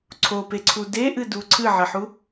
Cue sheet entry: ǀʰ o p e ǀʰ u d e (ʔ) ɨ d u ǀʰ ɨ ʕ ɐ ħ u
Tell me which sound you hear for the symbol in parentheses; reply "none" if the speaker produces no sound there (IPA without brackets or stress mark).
ʔ